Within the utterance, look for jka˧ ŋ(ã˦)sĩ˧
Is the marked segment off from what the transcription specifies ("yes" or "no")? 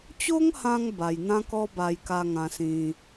yes